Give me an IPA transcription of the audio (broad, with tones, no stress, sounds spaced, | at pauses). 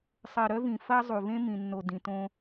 sˤ ɜ˨ ɾ œ˦ v ĩ˨ f ɐ˦ zˤ u˨ v ẽ˦ m ĩ˨ nː o˨ d ĩ˨ t õ˦